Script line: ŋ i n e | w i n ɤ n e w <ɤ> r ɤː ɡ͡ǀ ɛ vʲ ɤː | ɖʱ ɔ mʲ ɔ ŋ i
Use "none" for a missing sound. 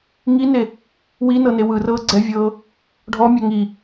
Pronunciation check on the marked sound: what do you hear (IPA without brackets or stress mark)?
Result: ɯ